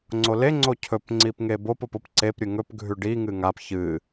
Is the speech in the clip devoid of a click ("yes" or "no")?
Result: no